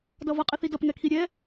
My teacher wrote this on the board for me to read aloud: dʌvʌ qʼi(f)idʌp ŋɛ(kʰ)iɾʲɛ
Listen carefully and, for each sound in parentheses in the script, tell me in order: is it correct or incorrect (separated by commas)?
incorrect, correct